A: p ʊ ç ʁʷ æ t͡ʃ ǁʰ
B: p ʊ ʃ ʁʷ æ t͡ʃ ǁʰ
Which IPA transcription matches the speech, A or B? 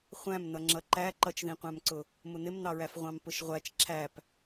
B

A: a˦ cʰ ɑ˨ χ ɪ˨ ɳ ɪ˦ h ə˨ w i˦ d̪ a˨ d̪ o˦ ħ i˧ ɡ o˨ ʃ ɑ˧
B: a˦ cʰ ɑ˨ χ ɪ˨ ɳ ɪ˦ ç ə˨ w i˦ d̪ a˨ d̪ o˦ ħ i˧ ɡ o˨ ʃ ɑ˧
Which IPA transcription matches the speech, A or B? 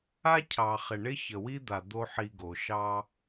B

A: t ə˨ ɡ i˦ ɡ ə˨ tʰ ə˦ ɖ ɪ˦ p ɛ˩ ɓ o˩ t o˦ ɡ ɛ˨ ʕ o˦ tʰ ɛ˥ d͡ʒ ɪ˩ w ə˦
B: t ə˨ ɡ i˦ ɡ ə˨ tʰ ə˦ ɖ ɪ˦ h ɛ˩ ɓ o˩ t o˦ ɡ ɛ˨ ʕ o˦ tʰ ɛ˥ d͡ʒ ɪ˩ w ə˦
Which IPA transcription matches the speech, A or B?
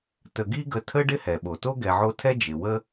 B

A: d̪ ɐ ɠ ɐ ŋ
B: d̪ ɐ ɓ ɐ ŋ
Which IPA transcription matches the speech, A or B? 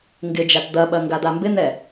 B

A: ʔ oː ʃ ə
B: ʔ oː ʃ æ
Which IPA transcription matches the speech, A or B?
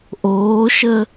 A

